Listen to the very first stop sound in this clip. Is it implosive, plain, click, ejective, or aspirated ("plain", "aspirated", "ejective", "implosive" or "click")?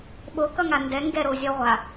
implosive